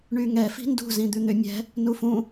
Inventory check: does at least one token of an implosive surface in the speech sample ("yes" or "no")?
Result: no